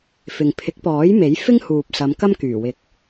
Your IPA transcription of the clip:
f ɪ˨ ŋ pʰ ɪ˨˥ k̚ p ɔː˨˥ j m e˨˥ j f ɪ˥ ŋ h uː˨ p̚ s ɐ˨˧ m k ɐ˥ m k yː˨˩ w ɪ˨˥ k̚

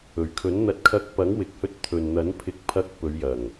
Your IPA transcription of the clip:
ɵ˨˩ ɥ kʰ ɵ˨˥ n n̪ ɐ˨ t̚ kʰ ɐ˧ k̚ p ɐ˨˥ ŋ w ɪ˨ k̚ h ɵ˧ t̚ t̪ʰ ɵ˨ n n̪ ɐ˨˥ n pʰ ɪ˧ k̚ pʰ ɐ˧ k̚ p ɵ˨˧ ɥ j ɐ˨˩ ŋ

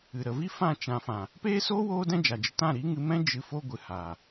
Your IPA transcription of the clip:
ɨ˨ ɾ ə˨ v i˦ f ã˦˨ t͡ʃ ã˧ f ã˨ | p eː˦ s oː˦ w oː˦ d ɛ̃˦ d͡ʒ a˨ d͡ʒ ə˧ t ã˦˨ ɾ i˨˦ ŋ ɨ˧ m ɛ̃˦ d͡ʒ ɨ˧ f o˧ ɡʷ ɨ˨ h a˨

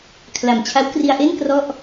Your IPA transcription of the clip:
kʰ l a˨˩ m t͡ɕʰ a˦˥ w k r i˧ a̯ ʔ e˥˩ n k r ɔ˥˩ ʔ

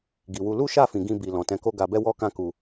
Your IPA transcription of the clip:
ɡ i˨ w u˧ l u˦ ʃ a˦˨ f ĩ˨ ɡ ĩ˧ b i˨ l ɔ̃˨ t ɛ̃˨˦ k o˦ ɡ a˧ b ɛ˦ w ɔ˦ k ã˦ k u˧

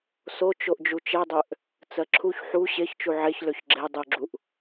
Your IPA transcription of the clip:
s o t͡ʃ o ʔ d͡ʒ u t͡ʃ ɛ dˤ ø ʔ | t͡s ɜ ǁʰ u ç ħ u ɕ e ç t͡ʃ u ʕ e ç l ø ç ɡ͡ǁ e dˤ u ɡ͡ǁ u ʔ

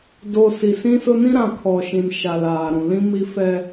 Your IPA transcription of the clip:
d o˨ s i˨ s ĩ˦ s ʊ˦ n ĩ˦ ɾ ã˨ kʰ ɔ˨ ʃ ĩ˨ n ʃ a˨ l aː˨ ɾ ũ˨ l ĩ˦ m i˦ f ɛ˦

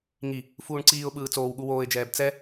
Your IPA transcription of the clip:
ŋ i | f uː ɳ ǀ iː ʊ̯ ɓ ɯː t͡s oː w ɠ u w oː ɪ̯ d͡ʒ ɛː b t͡s ɛ

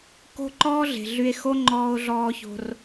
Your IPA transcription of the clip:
k o̤˦ ǃ ɔː˦ ɮ e̤˨ ɮ y˧ e̯ x o˦ ŋ͡ǃ ɔː˧ o̯ ɮ ɔː˧ ç o̤˧ r

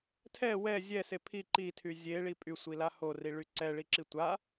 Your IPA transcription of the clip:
tʰ ɛ w ɛ zʲ ɛ s e pʰ i ǃ i tʰ y zʲ e ɭ i pʼ y sʷ i l a h o r i ɭ y ǀ ɛ ɭ i ǁ i tʷ a

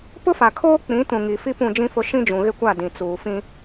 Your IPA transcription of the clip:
p ʊ˦ f a˨ kʰ oː˦ k͡p ĩ˨˦ t ũ˨ ŋ i˨ f i˦ p ũ˦˨ d͡ʒ ĩ˦ f ʊ˦ ʃ ĩ˦ d͡ʒ ũ˨ ɣ ɪ˦ kʷ a˦˨ d ĩ˨ t͡s uː˨ f ĩ˦

